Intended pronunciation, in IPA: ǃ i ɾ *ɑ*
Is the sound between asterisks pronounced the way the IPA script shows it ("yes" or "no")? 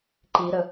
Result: no